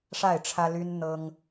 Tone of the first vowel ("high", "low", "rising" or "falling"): falling